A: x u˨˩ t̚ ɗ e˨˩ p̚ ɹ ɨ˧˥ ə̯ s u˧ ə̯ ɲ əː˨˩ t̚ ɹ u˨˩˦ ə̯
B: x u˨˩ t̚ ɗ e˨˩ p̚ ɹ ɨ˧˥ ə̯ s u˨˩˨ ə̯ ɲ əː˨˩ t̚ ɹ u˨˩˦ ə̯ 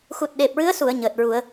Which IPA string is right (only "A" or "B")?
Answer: B